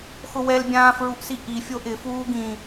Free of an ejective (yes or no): yes